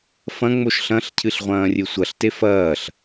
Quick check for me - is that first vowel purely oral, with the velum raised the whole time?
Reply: no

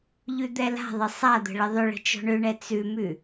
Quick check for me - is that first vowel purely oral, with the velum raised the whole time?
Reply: yes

